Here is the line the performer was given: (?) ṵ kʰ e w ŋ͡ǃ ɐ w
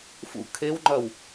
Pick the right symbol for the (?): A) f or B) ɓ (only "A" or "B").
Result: A